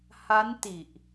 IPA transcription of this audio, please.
h a˦˥ n t i˨˩ ʔ

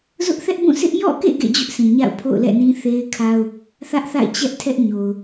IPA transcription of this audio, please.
z ʊ˦ ʔ θ ɛ˦ ʔ b ũ˦˨ s ɪ˦ ʔ j ɔ̰˦˨ k ḛ˦˨ ɡ ḛ˦˨ d͡ʑ ʊ˦ ʔ sʰ ĩ˨ ɲ a̰˦˨ ʊ̯ pʰ o̰˦˨ ʊ̯ l ɛ̰˦˨ n ĩ˦ θ e˦ ɪ̯ kʰ a˦ ʊ̯ | θ ä˦ ʔ θ a̰˦˨ ɪ̯ t͡ɕ ɛ˦ ʔ tʰ ɛ˦ ʔ ɲ o˨ ʊ̯

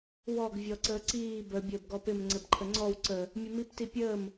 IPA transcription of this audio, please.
w ɔ ɡ vʲ ɔ ǀ əː ǀ iː b ə bʲ əː b ɡ ɔ p ɪ m ŋ͡ǀ ɘ b ǃʰ ə ŋ͡ǀ ɔ w ǀ ə | mʲ ə m i p t i pʲ əː m

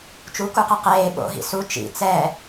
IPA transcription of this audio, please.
t͡ʃ u k u q ɛ q eː ɓ o̰ ɦ ḭ s u t͡ʃ ḭ t͡s ɛ

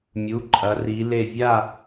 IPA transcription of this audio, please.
mʲ u˩˧˩ ǃʼ ɐ˨˦ r i˨˦ l e˥˧ vʲ a˥˧

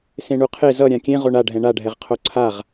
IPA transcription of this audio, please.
s ẽ ɳ u qʰ e z ʌ ɾʲ ã kʲ ẽ ʁ o ɳ a ɖʱ ɛ̃ ɳ a ɖʱ ɛ ʁ qʰ o ǀʰ a ʁ

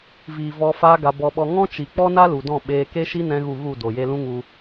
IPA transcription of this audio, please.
v iː˨ v ɔ˧ f a˦ ɡ a˧ b ɔ˧ ɓ ɔ˧ ŋ ɔ̃˦ t͡ʃ i˨ k͡p ɔ˦ n a˦ l u˨ d ɔ̃˦˨ ɓ eː˧ k e˦ ʃ i˦ n ɛ̃˧ ɣ u˦˨ ɣ u˦˨ d o˨ j e˧ l ũ˦ ŋ u˧

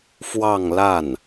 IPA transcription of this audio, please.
f w ɑ˥˧ ŋ l a˥˩ n

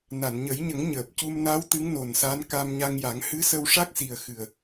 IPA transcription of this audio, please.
n a˨˩˨ n ɲ ə˨˩˦ j ɲ ə˨˩˦ ŋ ɲ əː˨˩ p̚ c u˧ m n a˧˥ w t̪ ɨ˧˥ ŋ n o˨˩ n s a˧˥ n k a˧ m ɲ a˧ ŋ j a˨˩˦ ŋ h ɨ˧˥ s ə˧ w ʂ a˦˥ k̚ s i˨˩ ə̯ x ɨ˨˩ ə̯

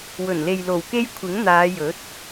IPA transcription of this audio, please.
w ɵ˨˩ n l e˨ j l o˨˩ w k e˧ j kʷʰ ɪ˨˥ ŋ n̪ aː˨˧ j ɵ˨˥ t̚

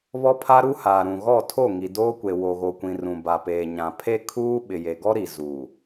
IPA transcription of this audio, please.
β ɔ˦ pʰ a˦ ɾ u˦ h aː˨ ɾ ũ˨ ɣ ɔ˦˨ tʰ o˦˨ ŋ i˨ d oː˦ kʷ e˨ w o˨ ɣ o˨ kʷ ĩ˨ r ũ˨ b a˨ p eː˨ ɲ ã˨ pʰ e˦ kʰ uː˦ ɓ ɪ˨ j e˨ ɡ ɔ˦ ɾ i˨ z uː˨

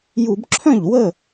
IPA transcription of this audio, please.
j u˧˩˧ b ǁʰ œ̃˥˩ ʎ w ə˥˩

